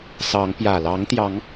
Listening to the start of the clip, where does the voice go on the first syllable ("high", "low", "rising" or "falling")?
rising